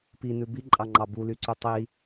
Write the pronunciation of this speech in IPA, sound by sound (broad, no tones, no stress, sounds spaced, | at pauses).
p i n ʉ b i ǃʼ ɑ ŋ͡ǃ ɑ b u l y ǀ ʉ tˤ i